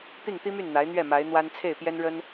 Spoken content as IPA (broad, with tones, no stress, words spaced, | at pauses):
t̪i˥˩ŋt̪i˥my˥˩n n̪a˧˥ɪ̯n̪ɥɛ˥˩ ma˧˥ɪ̯n̪wa˥n t͡sʰe˥˩ɪ̯pjɛ˥nɻə˥n